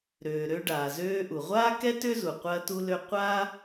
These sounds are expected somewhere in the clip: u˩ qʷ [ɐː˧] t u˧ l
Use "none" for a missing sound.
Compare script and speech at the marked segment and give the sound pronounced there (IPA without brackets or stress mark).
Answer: ɐː˧